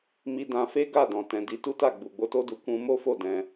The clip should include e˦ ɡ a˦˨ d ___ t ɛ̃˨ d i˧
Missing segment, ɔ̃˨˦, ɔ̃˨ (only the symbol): ɔ̃˨